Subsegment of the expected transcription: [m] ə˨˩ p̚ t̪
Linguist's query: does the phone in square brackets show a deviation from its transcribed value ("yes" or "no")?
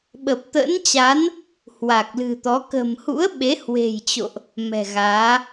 yes